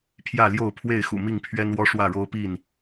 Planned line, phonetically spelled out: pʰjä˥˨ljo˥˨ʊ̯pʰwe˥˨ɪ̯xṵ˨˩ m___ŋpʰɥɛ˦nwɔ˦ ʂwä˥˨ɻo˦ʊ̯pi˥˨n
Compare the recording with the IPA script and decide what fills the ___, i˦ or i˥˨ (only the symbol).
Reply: i˥˨